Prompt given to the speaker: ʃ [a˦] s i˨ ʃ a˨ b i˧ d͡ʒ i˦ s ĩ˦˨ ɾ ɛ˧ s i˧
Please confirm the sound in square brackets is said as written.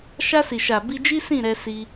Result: no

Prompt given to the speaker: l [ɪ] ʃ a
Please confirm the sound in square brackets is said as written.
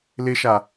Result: yes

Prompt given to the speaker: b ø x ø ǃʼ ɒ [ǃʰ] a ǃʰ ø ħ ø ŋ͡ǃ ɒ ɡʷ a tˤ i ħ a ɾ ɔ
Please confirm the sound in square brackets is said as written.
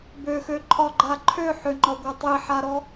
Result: no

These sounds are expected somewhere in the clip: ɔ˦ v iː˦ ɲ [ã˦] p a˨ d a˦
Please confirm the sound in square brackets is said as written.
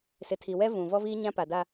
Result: yes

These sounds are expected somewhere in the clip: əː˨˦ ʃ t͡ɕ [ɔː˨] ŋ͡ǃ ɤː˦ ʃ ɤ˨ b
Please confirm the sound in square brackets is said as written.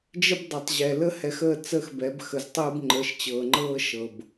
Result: no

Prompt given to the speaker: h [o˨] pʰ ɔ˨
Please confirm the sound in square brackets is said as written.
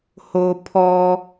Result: yes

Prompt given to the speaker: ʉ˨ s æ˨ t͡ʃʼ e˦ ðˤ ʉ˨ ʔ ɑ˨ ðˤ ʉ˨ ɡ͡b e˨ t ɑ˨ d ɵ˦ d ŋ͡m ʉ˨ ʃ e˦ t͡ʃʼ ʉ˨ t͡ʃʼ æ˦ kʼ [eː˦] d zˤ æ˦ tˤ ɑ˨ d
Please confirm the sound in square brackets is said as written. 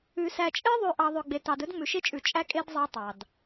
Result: no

